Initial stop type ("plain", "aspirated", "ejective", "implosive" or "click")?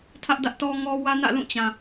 aspirated